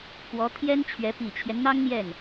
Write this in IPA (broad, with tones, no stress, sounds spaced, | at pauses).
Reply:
k w ɔ˧˥ t̪ʰ j ɛ˥ n t͡ɕʰ ɥ ɛ˧˥ p i˨˩ t͡ɕʰ j ɛ˦ n n̪ ɑ˥ ŋ n̪ j ɛ˥˩ n